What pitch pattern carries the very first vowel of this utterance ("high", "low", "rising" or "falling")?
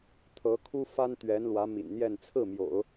rising